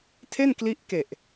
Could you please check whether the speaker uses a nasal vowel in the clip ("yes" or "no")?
no